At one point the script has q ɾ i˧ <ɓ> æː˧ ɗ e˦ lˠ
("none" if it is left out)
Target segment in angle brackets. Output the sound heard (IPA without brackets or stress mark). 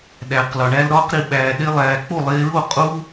ɓ